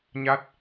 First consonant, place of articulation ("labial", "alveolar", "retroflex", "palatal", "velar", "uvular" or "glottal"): palatal